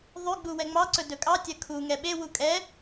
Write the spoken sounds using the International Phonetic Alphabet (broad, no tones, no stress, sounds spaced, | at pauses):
ðˤ y ɡ͡b u w ɛ ŋ͡m ɑ ǀ ɵ d ɵ kʼ ɑ tʲ ɜ kʰ u ŋ ɛ ɓ e w u kʼ ɛ